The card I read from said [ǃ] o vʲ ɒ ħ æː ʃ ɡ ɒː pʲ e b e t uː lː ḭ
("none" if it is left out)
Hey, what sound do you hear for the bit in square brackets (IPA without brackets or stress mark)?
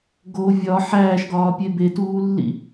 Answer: ɡ